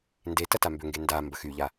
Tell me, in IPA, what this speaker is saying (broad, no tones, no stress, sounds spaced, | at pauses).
n d e t ɐ t a m b ʏ ŋ ɡ e n d a m b ɐ x y ʎ a